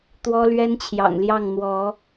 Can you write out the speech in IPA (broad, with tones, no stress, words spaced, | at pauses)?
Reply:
t̪wɔ˦lɥɛ˦nt͡ɕʰjɑ̰˨˩ŋ ljɑ˥˨ŋn̪wɔ˨˦